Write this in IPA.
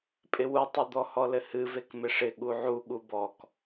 pʼ ɪ w u tˤ u d̪ ɔ h ɔ l ɘ h ɨ v e k m ɪ ʂ ɪ ɠ u ʕ u ɠ u b ɔ k

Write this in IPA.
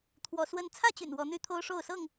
t̪ʰ w ɔ˨˦ s w ə˦ n t͡sʰ ä˥˨ t͡ɕ y̰˨˩ n w ɔ˨˦ n̪ y˦ t̪ʰ o˦ ʊ̯ ʂ o˥˨ ʊ̯ s ɤ˥˨ ŋ

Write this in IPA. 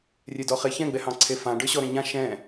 rʲ e d ɔ χ e ç ɛ̃ ɡ͡b ɛ h ɑ̃ ǀʰ e f ã ɖ ə˞ ɕ ɔ ɾ ɛ̃ ɲ ã ʃ ɛ̃

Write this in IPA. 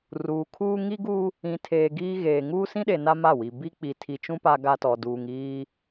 r uː˨ kʰ uː˦ ŋ i˦ ɡ u˦ | ĩ˨ tʰ eː˨ ɡ iː˦ ɣ eː˨ ŋ uː˦ s ĩ˦ ɗ e˨ n a˦ m a˦˨ w i˨ b i˦ k͡p i˨ tʰ i˨ t͡ʃ ũ˦ p a˦ ɡ a˦ t ɔ˨ d uː˨ ŋ iː˦

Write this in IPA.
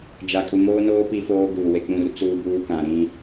d͡ʒ a˨ kʼ u˨ m oː˦ n oː˦ p i˦ f oː˦ ɡ uː˨ w e˨ k͡p ũ˦˨ r t͡s uː˦ b uː˦ k ã˨ ɾ ĩ˦

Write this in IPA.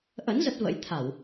ʔ ə̰˧˥ n z ə˦˥ t̚ v ə̰˧˥ j t̪ʰ a˧˩˨ w

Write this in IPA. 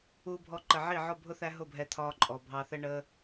uː˧ bʱ ɔ˧ ǃ ə˨ ʕ i˦˨ ʕ ɔ˦˨ bʱ ʊ˦ θ æ˦ ɦ ʊ˦˨ bʱ ɛ˧ t̪ʰ ɒː˧ ǃʼ ɔ˨ bʱ ɑ˧ θ ɛ˦ ɳ əː˦

